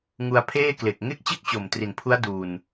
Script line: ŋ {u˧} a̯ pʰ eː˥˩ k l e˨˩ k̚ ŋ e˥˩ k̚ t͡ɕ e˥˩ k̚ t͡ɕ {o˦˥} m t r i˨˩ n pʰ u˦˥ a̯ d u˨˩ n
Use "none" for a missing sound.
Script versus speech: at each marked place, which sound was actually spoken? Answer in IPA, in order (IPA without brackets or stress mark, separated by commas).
u˧, o˨˩